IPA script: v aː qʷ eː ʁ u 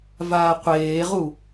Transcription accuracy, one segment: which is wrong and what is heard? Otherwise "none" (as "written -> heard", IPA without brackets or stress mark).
none